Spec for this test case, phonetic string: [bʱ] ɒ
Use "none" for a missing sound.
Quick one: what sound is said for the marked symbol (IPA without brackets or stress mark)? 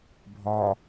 bʱ